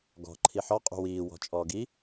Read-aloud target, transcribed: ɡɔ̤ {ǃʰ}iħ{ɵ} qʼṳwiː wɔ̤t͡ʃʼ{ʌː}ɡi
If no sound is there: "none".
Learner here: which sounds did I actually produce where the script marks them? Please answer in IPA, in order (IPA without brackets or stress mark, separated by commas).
ǃʰ, ɔ, ɔː